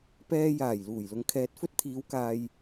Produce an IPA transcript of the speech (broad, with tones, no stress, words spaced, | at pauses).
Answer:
pɛː˧jaː˨˩j luː˨˩jlʊ˨ŋkʰɛː˨t̚ fɵ˥t̚t̪ʰiː˨˧w kaː˧j